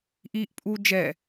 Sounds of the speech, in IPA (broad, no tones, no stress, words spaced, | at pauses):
ʔiʔ pʼu d͡ʒɛ